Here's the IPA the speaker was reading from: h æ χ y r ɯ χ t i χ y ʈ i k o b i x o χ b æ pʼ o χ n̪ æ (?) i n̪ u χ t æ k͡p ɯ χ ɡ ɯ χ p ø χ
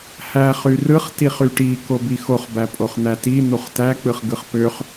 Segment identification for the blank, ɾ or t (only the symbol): t